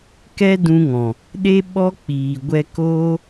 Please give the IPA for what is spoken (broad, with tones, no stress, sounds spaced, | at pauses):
k ɛ˦ d ũ˧ ŋ ɔ̃˨ | ɗ e˦ ɓ ɔ˦ k͡p iː˨ ɡʷ ɛ˧ k oː˦